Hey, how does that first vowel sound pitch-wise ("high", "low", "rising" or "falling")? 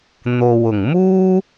low